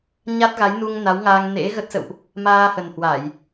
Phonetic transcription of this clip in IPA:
ɲa˦˥t̚ɣa˨˦j nu˧ŋna˨˦wŋaː˧ŋ nḛ˧˥ɣə˦˥t̚sə̰˧˨wʔ | maː˧hə˨˩nhwa˧˩˨j

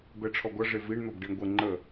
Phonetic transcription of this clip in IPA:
bɛʈ͡ʂʰɔɡʷʌ ʐeviɳn̪ɔb ɖiɳɡʷə ŋ͡ǃə

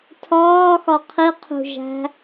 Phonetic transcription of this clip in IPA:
tʰɒːxɒ qʰiqʰṳʒæ̤

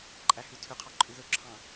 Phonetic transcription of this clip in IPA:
ǃʼæhʉtʰøqʰɑ ǃʼʉðɵǁʰɑ̃

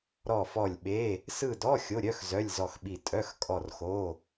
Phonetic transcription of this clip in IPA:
ɾɔ˦˨fɔ˦˨lʲɓe˧˥˧ | sɯ˦˨dɔ˧˥˧ xʲo˧˥˧ɾʲœ˧˥˧x zœ˧˥˧lʲzɔ˦˨xɓi˦˨ tʼœ˧˥˧xkʼɔ˦˨r xo˧˥˧

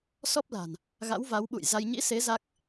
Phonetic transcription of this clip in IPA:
sɔ˦˥p̚la̤˨˩n | ɣa̰˧˥wva˨˦wɓṵ˧˨jza˧j ɲḭ˧˥se˨˦ za˦˥k̚

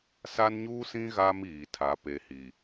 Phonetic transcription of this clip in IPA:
sa˦nɲuː˦sĩ˦ ɣaː˦miː˨tʰa˨˦ pe˨hi˨

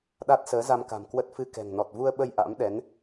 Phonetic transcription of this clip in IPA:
ɗa˦˥t̚səː˨˦za˧mka̤˨˩m kwə˦˥t̚fɨ˧kɛ̤˨˩ŋ nɔ˨˩t̚vu˧ə̯ɓə˧j ʔa̰˧˥mɗɛ˨˦n

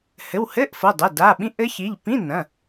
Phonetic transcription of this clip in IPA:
hɘ˩˧˩whɘ˧˥˧ʔfɤ˩˧˩dˤɛ˩˧˩ da˩˧˩ ɓĩ˧˥ʔɘ˧˥çi˩˧˩ʎ pĩ˧˥˧nɐ̃˩˧˩

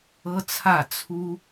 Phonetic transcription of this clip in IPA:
ɤ˦t͡sʰä˥˨ t͡sʰu˦

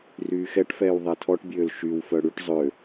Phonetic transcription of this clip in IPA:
ryːxɛʈfɛːw ðˤɛtʰɔʈbʲøːl ʃywfœ ɽyʈ zˤø

